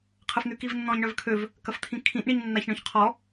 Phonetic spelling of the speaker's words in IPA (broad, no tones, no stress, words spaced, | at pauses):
qʰəfn̪ykivnːɔ̃ɲ ɳœvkʰøv | kɐft̪ʰĩkʰĩʔ ɳiɲnːaçɳœ̃çqʰɔ